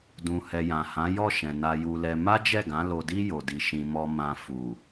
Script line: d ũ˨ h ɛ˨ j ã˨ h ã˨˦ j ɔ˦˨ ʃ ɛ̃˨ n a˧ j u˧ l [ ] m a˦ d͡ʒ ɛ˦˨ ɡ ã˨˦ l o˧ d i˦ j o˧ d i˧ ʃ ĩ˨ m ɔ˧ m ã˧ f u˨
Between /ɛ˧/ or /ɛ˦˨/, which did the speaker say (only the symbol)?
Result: ɛ˧